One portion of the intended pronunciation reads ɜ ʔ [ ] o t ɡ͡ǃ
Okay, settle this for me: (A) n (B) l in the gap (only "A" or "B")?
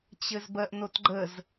A